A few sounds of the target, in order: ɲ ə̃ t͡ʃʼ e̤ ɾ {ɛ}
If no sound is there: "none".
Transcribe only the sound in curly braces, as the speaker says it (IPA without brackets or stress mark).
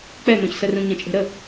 ə